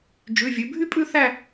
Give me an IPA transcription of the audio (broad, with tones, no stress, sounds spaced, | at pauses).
d͡ʒ ʉ˩˧˩ vʲ ʉ˩˧ bʱ y˥ pʼ ʉ˥˧ θ æ˥˧